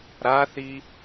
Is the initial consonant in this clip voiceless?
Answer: no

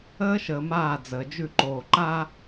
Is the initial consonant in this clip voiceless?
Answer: yes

